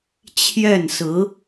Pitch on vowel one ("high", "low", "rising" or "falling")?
falling